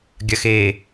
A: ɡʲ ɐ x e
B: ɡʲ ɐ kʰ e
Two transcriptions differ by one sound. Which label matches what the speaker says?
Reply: A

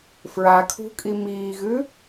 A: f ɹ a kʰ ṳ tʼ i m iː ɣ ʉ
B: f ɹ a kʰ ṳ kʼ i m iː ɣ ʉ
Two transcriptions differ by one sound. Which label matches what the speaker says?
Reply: B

